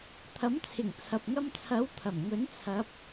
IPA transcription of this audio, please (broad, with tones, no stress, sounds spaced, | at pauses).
t̪ʰ ɐ˨˥ m t͡sʰ ɪ˨˩ ŋ t͡sʰ ɐ˨ p̚ ŋ ɐ˧ m t͡sʰ ɐ˨˥ w t̪ʰ ɐ˨˩ m ŋ ɵ˨˥ n t͡sʰ ɐ˨˥ p̚